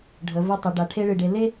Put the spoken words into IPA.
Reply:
ɖʱ ə˩˧ v ɨ˧ tˤ ə˩˧ ɖ a˩˧ ʈʰ e˥ ɭ ɨ˧˩ ɖ e˧ l e˥

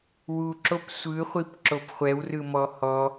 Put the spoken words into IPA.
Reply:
w u ǁ o p sʷ ɯ χʷ i p ǁ o p χʷ ɛ w r ɯ m ɔ h ɔ

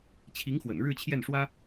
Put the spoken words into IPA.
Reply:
t͡ɕʰ i˧˥ ŋ x w ə̰˨˩ n ɻ ɻ̩˥˧ t͡ɕʰ j ɛ˥˩ n ʂ w ä˥

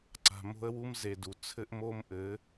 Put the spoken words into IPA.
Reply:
ǀ a̤˨ m o̤˦ ə̯ w u˦ m z e˨ d u˨ t͡sʰ ɘ˦ ʔ m o˦ m ʔ ɘ˨˦

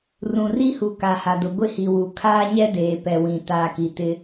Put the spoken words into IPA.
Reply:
r ũ˨ r i˦ h u˨ k a˨ h a˨ d ʊ˨ ɡʷ ɪ˦ h i˨ w u˨ kʰ aː˦ ɲ ɛ˦ d eː˨ p ɛ˨ w ĩ˨ t aː˨ k i˨ t ɪ˦

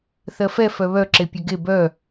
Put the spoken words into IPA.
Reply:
θ ɜ f ɛ f œ β œ ǁ e pʲ œ ɡ e b œ

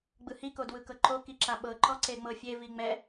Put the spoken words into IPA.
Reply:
ɡ͡b ɯ h i k o d w ɯ k ɤ ǃ o k i ǁ a ɓ ɤ ǃ ɔ ǀ e ŋ͡m ɤ fʲ e v i ŋ͡m ɛ

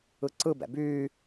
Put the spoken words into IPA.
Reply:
ɯ ǀ ɯ b ɛ̰ b yː

